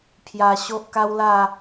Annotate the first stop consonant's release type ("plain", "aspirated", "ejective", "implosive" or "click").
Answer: aspirated